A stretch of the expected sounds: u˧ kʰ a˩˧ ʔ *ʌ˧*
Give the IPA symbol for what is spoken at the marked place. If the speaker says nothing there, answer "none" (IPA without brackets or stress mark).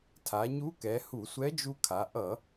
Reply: ʌ˧˩˧